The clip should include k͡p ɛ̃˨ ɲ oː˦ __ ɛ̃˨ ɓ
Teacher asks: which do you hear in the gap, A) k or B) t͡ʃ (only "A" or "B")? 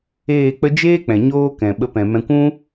A